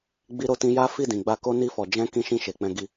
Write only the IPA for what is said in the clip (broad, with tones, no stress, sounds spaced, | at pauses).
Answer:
ɡ͡b i˧ ɾ o˧ t ĩ˧ j a˦ f i˦˨ d ĩ˨ ɡ͡b a˧ k o˦ n i˧ f ɔ˨ d͡ʒ ɛ̃˧ k ĩ˧ ʃ ĩ˧ ʃ e˨ k͡p ɛ̃˧ ɡ i˧